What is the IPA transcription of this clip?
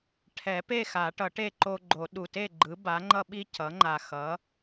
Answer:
ʈʰ ɛ˨˩˦ p e˥˨ x a˨˩˦ ʈ ʌ˨˩˦ ʈ e˥˨ ǃ o˦ ɡ͡ǃ o˨˩˦ ɗ u˨˩ t e˥˨ ɡ͡ǃ ɯ˩˥ b a˩˥ ŋ͡ǃ ʌ˦ ɓ i˦ c ʌ˩˥ ŋ͡ǃ a˨˩ x ʌ˩˥

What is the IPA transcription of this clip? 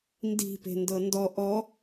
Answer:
n d i̤ p e̤ n d ɤ n d ɔ ʔ ɔ

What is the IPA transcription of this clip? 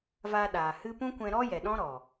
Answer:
v a˧ ɗ aː˨ h ɨ˦ p ũ˦ kʷ ɛ̃˧ ɾ ɔ˦ j ɛ˨ ɗ ɔ̃˦ ɾ ɔ˨

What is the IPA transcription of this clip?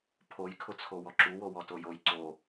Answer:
pʰ o j kʰ ʊ t͡sʰ o w ɔ ǁ u w o w ɔ t o j o j ǀ o

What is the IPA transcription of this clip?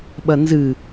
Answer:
ɓ ɐ n z ɨ

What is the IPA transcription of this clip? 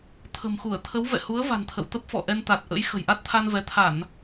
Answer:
t̪ʰ ə̤˨˩ m x u˧˩ ə̯ t̪ʰ ə˨˦ w v ɛ̰˧˨ h u˨˦ ə̯ v a̤˨˩ n t̪ʰ ə̰˧˨ w t̪ ə˦˥ p̚ f ɔ̰˧˨ ʔ ɛ˧ n t̪ a˨˩ t̚ ʔ ə̰˧˥ j x ə̤˨˩ j ʔ a˦˥ t̚ t̪ʰ a˧ n v ɛ˨˦ t̪ʰ a˧˩˨ n

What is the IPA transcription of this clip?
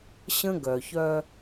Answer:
ɕ ə̃˦ ɡ œ˨ ç œ˦

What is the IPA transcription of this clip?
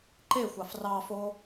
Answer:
ǃ e xʷ ɑ f r ɑ f o

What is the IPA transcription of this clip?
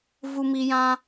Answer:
v u˧ m i˧ j ã˦

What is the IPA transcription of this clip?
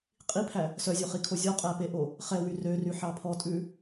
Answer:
qʼ i pʰ æ | s œ zʲ o χ i kʰ o zʲ ɔ qʼ æ p e ʔ o | χ ɛ w y r ø r y ħ ɑ pʰ ɔ tʼ ʉ

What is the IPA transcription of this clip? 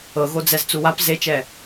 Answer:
ɤ ɣ o d͡z ɛ z t͡s u w a p z e t͡ʃ ɛ

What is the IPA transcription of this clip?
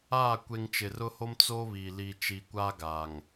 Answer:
aː˦˨ kʷ e˨ ŋ t͡ʃ ɪ˨ r ʊ˦ h o˦ m t͡s o˦ β i˨ l i˨ t͡ʃ i˨ kʷ aː˦ ɡ a˨ ŋ

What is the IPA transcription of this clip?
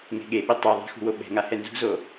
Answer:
ŋ e̤ ɠ e ɓ ɪ tˤ ɛ ðˤ a̤ x ṳ w o ɓ ɛ̤ ŋ a h ɛ n z ṳ z o

